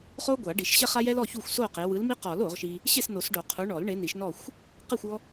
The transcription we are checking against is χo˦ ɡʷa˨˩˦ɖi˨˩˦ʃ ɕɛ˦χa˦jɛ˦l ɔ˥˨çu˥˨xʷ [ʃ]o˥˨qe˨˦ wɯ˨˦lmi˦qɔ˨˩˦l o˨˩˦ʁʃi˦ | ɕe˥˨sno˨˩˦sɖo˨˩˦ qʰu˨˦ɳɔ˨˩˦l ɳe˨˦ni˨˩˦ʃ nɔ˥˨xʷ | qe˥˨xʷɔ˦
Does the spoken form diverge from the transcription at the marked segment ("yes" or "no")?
yes